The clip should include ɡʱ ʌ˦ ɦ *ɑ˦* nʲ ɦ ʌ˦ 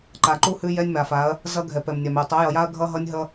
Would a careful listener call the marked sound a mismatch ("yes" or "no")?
yes